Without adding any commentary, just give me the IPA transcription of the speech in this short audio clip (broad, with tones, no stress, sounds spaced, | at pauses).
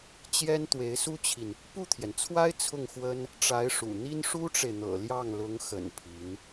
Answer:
t͡ɕ j ɛ˥ n t̪ w e˧˥ ɪ̯ s u˥ t͡ɕʰ i˨ n | p u˥˩ t̪ʰ j ɛ˩ n t͡sʰ w a˥ ɪ̯ t͡sʰ ʊ˥˩ ŋ x w ə˥ n | ʈ͡ʂ a˧˥ ɪ̯ ʂ ṵ˨˩ n̪ i˥ n ʂ u˥ ʈ͡ʂ e˨ ɪ̯ n̪ ɤ̰˨˩ l j ɑ˥˩ ŋ l ʊ˧˥ ŋ x ə̰˨˩ n pʰ i˧˥ n